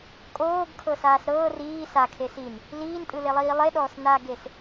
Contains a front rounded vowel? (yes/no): no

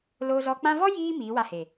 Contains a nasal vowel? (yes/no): yes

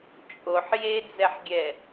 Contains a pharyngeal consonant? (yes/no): yes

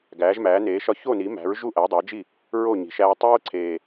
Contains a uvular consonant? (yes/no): no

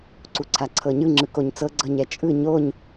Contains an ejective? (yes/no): yes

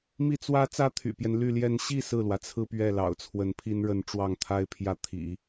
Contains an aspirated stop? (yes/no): yes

